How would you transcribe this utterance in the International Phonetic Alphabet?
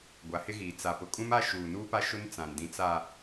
ɡʷa˨˦hɪ˦ɣiː˨ t͡sa˨pʊ˨ kʼũ˦ma˦ ʃuː˨nuː˦pa˦ʃʊ˦n t͡sã˨n dĩ˨t͡sa˨

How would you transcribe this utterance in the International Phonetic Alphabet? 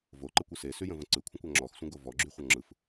voǃəkʷɯ sesyjə̃və̃ ǀɯkʷʰə̃kʷa ŋ͡ǁɔxsʷə̃ɡo vɔɡ͡ǁyχʷʌ ŋ͡ǁɯf

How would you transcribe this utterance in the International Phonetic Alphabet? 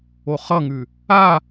oχʌŋʉ | a

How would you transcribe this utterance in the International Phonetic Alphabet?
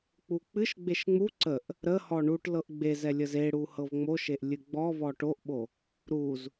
k͡puk͡pɨʃ ɡ͡beʃŋ͡mu ǀəʔ | ɾə hɔɳuʈ lɤʔɡ͡bezɛ lʲəzeɽu hɤvŋ͡moʃeʔ lʲɨɡ͡bɔ vɔʈoʔɓo | ɾuz

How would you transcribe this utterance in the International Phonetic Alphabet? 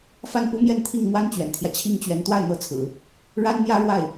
fa˥˩npu˥mjɛ˥˧nt̪ʰi˥˩ŋ mwa˥nt͡ɕɥɛ̰˨˩nt̪ʰjä˦ t͡ɕʰi˥ŋt͡ɕɥɛ˧˥n t̪wa˥˩ɪ̯n̪ɤ˧˥ t͡sʰɹ̩˨˩˦ | ɻa˥nn̪jä˥ɻwa˥˩ɪ̯

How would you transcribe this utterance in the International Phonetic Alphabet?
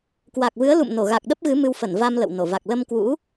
kwa˨˩k̚vɨ˨˦ə̯lṵ˧˨m no˧˩ɣa˨˩k̚ɗə˦˥p̚ɣɨ˨˦ mɨ˧wfə˧˩nva˧m lə̰˧˨wno˧˩va˨˩k̚ lə˧mkwṵ˧˥

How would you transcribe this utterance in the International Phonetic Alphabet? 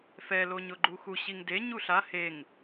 fɛ loɲʊɡ͡ǃuxu ɕiŋde ɲuɬa heŋ

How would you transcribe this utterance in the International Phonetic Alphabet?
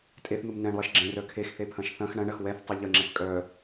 tʼeθn̪um nɛ̃ɳlˠɐʃ ɡ͡ǁẽrœ kʰexθepʰɐ̃ʃ θɐ̃x ɳɐ̃ɳɐx wɛθtˤʏ ʎəŋ͡ǁɛθ kʼœ

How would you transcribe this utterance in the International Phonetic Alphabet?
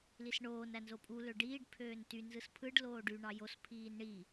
lisɳoːn ænzopʼu løɖiːɖ pʰøːnty nzɯspʰɯɖ loːɖy ɳɑjos pʰiːnɳi

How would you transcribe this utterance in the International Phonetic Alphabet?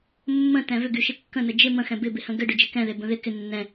mːə̃tɛ̃ vʏɡyʃɪ kːə̃nə d͡ʒɪ mə̃xɛ̃ bɪbɪhə̃ ɡɘɖʏd͡ʒɪ kɛ̃ðebə̃ ðɪ kɪ nːɛ̃

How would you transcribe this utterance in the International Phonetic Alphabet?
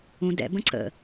ũ dɛ̰ bə̃ǀə̰

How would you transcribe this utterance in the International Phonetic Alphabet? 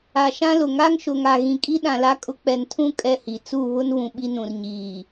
a˨ʃã˦lʊ˨ ŋa˦ŋʃʊ˨ŋa˨ ɣĩ˨kʼi˦ ɗã˨la˦kʼʊ˦ k͡pɛ˨ntʰũ˦ kʼɛ˦hi˨ t͡su˦˨βʊ˦nβũ˨ ɓi˦nũ˨rɲiː˨

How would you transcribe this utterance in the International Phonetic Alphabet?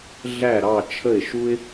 ɮæ˥˩ɾɑ˥˩ t͡ʃʰə˥˩ɪ̯ʃu˥ɪ̯

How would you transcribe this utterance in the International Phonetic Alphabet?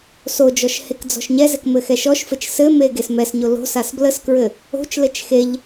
sod͡ʒɔʃ hekd͡zɔ̤ʃɲɛzɛk mɘxɛʃɔʃfɘt͡ʃ sɘme ɡesmɛsɲo lo̤sas bləskɹɘ | o̤t͡ʃlɘt͡ʃ xeʎ

